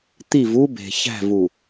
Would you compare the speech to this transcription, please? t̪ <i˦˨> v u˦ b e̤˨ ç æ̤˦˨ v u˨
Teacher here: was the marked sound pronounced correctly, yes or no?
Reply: yes